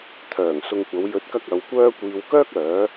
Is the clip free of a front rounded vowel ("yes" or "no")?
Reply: no